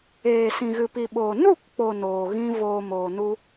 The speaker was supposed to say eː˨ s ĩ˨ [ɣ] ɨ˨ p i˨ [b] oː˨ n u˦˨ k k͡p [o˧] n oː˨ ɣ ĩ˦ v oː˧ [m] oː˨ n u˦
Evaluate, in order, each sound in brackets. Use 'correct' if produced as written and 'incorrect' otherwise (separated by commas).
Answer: correct, incorrect, incorrect, correct